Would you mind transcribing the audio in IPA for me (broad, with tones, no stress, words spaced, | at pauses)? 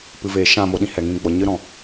pɨ˨veː˨ ʃã˦˨mo˧ɗĩ˧ hɛ˨ŋĩ˧ ɡ͡bɔ˨ɲɨ˧ɾɔ̃˨